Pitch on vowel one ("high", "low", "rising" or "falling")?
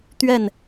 falling